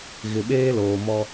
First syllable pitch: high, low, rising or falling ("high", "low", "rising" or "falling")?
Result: low